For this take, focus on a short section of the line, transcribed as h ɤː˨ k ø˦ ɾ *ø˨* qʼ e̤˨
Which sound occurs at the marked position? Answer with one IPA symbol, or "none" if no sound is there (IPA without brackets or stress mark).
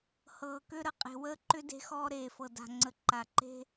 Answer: ə˨